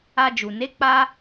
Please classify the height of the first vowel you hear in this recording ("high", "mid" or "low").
low